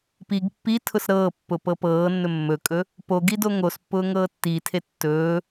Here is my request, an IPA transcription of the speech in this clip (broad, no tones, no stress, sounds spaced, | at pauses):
p i ɡ pː i tʰ ʊ s ɾ ɤː pː ʊ p ɤ p ɤː nː ɵ mː ɵ kʼ ɵ | p o ɡ i d o ŋ o s pː ʊː ŋ ɤː tː i tʰ e tː ɵː